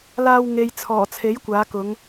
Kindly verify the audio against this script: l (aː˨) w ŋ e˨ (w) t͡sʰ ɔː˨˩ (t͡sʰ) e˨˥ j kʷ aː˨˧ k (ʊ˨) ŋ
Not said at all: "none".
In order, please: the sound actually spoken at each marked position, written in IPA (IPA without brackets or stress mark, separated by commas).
aː˧, j, t͡sʰ, ʊ˨˧